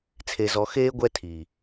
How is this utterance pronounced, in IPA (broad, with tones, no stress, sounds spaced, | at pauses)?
t͡sʰ e˨ z ɔ˨ x eː˦ ɡʷ ɛ˦ tʰ i˨